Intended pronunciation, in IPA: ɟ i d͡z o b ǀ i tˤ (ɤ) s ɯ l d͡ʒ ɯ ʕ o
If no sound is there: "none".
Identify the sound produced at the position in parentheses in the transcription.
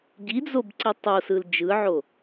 o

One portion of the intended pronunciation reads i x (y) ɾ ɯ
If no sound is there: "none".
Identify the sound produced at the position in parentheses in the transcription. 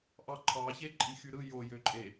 y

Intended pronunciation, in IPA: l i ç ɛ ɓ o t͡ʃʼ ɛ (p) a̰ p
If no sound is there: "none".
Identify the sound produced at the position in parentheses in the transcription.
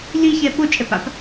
p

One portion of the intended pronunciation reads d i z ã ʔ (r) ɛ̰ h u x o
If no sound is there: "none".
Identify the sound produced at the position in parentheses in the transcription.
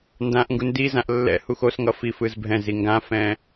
lː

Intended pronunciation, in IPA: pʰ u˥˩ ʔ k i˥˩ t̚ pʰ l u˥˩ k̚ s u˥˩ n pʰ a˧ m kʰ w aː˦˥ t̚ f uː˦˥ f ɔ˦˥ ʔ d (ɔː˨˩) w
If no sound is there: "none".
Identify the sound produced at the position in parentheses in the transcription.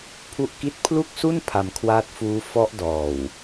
ɔː˨˩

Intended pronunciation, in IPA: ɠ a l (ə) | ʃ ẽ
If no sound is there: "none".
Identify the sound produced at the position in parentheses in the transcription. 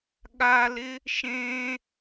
ɪ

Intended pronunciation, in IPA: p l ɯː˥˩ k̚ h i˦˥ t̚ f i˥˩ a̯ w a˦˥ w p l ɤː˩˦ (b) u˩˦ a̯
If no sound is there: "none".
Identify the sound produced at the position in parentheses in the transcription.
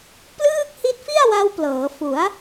f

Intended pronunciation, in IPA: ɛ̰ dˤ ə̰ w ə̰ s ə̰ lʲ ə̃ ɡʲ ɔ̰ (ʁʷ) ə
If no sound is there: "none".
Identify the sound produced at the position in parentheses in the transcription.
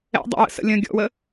w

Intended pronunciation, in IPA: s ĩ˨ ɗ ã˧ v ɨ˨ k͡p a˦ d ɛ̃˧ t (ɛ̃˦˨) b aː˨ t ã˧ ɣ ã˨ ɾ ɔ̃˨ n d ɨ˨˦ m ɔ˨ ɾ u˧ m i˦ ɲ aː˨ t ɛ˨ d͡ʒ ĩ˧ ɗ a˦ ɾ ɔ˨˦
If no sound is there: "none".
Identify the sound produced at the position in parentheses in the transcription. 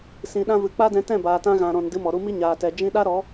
ɛ̃˦˨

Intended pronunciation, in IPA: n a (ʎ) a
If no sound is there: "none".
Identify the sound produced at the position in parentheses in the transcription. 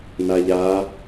ʎ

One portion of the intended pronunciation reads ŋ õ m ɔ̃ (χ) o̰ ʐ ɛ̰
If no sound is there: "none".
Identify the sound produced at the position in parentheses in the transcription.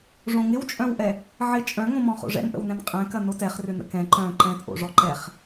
χ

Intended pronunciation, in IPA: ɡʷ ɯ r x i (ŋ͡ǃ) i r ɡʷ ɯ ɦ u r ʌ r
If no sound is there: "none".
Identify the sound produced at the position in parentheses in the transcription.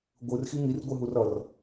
ŋ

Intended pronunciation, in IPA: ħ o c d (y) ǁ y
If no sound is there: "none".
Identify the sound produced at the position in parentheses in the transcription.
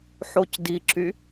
i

